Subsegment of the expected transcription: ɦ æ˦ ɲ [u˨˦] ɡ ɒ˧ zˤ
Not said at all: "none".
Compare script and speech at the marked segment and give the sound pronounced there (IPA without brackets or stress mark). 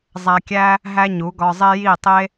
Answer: u˨˦